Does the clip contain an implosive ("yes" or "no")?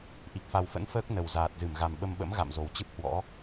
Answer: yes